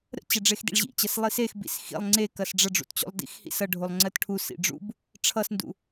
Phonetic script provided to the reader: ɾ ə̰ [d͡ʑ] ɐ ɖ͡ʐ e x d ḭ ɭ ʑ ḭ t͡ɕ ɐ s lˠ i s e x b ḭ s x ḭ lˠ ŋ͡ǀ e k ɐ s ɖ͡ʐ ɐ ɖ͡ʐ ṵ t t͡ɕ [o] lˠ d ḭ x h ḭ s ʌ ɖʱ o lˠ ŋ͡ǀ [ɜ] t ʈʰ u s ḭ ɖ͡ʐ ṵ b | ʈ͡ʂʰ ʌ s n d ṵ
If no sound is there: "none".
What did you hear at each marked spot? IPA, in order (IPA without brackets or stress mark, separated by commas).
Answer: t͡ɕ, o̰, ɜ